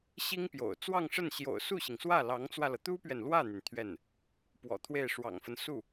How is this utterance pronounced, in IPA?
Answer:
ɕi˥ŋpjo̰˨˩ʊ̯ t͡swɑ˥˧ŋʂə˥˩n ɕjo̰˨˩ʊ̯su˥˩ɕi˩ŋswä˥˩ lɑ˧˥ŋt͡swä˧lɤ˩ t̪u˥pɥɛ˨nlwä˥˩n̪y˩n t̪ʰɥɛ˥˩n | pwɔ̰˨˩t̪ʰwe˥˩ɪ̯ʂwɑ̰˨˩ŋfə˦n su˥˩

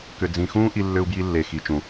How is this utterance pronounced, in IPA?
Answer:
kʏ˨ d͡zĩ˨xũː˦ ʔi˧lːʏ˧u̯bji˧lːe˨ xi˨ t͡ʃũ˨

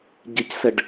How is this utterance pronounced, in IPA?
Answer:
ɟɪcsɛɖ

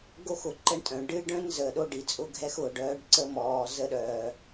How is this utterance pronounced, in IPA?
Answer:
ɡo˦xʊ˨ǃə˦ɳtʼœ̃˨ ɖɨ˦ɖœ̃˦n zəː˨ɗo˦ɖi˨t͡sʼʊ˦ ɡʱɛ˦xʊː˨ɖ œː˦ɖǀə˦mɔː˨ zə˦ɗœː˨

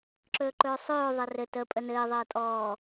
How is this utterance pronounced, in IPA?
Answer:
ǁɵːǃɵːsˤɵː ðˤɘrɘ tə pʼənɘː ðˤəːtʼɔː

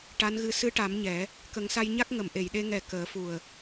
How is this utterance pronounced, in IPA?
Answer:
ʈa˧˥nɣɨ˧˥ sɨ˧˥ʈa˨˩˦m ɲɛ˨˩˦ | kə˨˩˦ŋsa˧jɲa˦˥k̚ ŋə˨˩˨m ʔe˨˩˨jɗe˧ ŋɛ˨˩ kəː˨˩˦fu˨˩ə̯

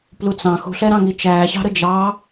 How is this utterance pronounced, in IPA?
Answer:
plut͡sɑ̃ xṳɬɛɾɑ̃ŋi t͡ʃæːɕɑ̤ɾə d͡ʒɑ

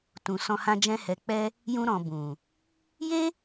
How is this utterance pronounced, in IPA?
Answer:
tũ˨sɔ̃˧hã˧d͡ʒɛ̃˧ hɛ˨k͡pɛ˧ | jũ˧ɾɔ̃˨bũ˨ | je˦

